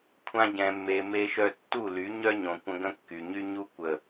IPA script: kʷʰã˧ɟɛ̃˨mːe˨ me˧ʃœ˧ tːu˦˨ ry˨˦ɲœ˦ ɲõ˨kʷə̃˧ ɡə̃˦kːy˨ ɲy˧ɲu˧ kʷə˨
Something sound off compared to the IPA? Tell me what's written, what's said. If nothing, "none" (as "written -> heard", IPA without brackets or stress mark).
r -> l